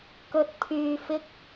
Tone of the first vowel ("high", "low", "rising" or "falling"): low